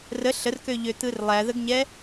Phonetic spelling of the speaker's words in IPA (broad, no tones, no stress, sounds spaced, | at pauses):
r ə ɬ ə r k ø ʎ ø t̪ ɯ r lˠ æ ð ə ɡ ɲ ɛ